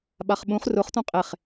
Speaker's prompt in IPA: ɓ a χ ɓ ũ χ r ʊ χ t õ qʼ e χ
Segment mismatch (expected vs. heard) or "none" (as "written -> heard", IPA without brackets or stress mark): none